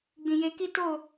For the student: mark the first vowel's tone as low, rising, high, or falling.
low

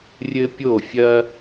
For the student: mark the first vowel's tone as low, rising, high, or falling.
high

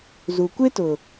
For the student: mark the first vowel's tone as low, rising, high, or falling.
low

